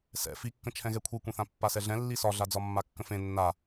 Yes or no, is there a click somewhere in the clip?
no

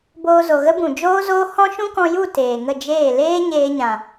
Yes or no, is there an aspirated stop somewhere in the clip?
no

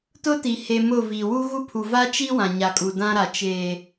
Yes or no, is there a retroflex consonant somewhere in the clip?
no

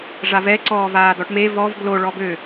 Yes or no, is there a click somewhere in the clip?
yes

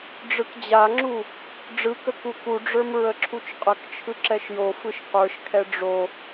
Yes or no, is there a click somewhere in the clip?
yes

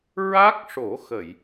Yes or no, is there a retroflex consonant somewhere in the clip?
yes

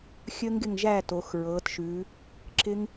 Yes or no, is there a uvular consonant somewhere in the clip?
no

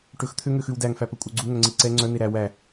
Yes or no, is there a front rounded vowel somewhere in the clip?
yes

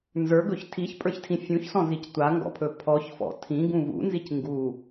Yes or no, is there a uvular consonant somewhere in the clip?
no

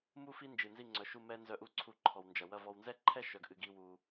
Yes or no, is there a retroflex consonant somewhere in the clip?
no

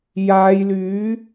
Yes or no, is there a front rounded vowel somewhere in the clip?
yes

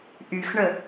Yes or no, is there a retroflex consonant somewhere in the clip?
yes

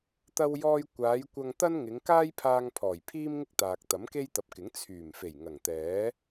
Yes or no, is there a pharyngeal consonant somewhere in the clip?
no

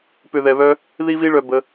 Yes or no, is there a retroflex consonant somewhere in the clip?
yes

